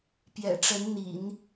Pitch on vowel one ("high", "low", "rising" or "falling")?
low